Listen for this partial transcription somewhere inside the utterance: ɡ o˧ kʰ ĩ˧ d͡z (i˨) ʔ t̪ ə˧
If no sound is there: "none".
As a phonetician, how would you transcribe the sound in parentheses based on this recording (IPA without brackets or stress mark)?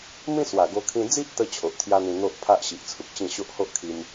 i˦